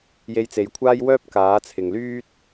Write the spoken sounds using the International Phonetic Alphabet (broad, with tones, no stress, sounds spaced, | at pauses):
j e˧ j t͡s e˨˧ j kʷʰ aː˥ j w œː˥ p̚ k aː˨˥ t͡sʰ ɪ˨ ŋ l yː˥ t̚